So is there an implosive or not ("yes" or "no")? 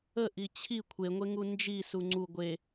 no